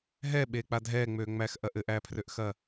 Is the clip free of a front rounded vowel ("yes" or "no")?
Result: no